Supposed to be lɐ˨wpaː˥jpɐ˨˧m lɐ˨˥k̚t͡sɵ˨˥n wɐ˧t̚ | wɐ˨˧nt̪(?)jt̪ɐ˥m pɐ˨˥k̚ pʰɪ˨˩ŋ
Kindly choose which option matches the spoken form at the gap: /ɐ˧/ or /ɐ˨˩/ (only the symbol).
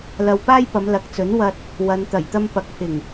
ɐ˨˩